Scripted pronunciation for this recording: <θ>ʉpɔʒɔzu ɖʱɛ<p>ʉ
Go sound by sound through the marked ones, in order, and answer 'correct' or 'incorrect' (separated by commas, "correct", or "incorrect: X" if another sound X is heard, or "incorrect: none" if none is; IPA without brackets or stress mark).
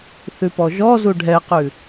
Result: correct, incorrect: q